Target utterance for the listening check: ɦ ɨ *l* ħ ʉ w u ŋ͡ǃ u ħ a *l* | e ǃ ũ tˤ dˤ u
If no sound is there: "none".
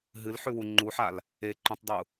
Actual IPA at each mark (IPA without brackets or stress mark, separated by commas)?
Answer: l, l